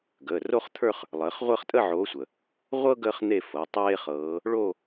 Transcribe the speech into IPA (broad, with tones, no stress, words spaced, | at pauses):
ɡəː˩˧˩ ro˥χt̪ʰə˞˥˧χ | lˠəː˨˦χ ʁʷəː˥˧χtʼə˥˧ʕoː˨˦sʷə˩ | ʁʷɤ˥ ɡəː˥χn̪e˥˧ fɤ˩˧˩tˤeː˥χɤː˨˦ | ɭo˥˧